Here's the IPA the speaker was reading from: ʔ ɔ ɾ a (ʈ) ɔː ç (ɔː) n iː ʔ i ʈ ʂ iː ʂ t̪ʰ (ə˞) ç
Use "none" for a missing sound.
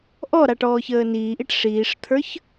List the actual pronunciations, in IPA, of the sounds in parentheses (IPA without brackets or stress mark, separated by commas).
ʈ, əː, ə˞